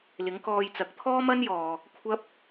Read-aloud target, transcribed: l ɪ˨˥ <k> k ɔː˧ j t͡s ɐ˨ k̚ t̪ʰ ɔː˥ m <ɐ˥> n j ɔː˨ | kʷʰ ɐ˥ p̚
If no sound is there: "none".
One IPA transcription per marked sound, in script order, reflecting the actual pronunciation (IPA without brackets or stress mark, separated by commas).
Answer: ŋ, ɐ˥